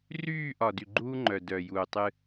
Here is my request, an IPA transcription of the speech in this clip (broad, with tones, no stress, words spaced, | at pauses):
ryː˦˨ʔɒ˨ dy˨ɡ͡ǃuː˦ŋ͡ǃœ˨ dœ˨juː˨tˤɨ˦